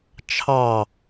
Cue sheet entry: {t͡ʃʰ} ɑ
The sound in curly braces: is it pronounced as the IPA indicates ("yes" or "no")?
yes